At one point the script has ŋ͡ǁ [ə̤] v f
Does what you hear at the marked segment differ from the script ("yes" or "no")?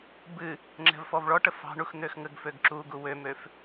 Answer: yes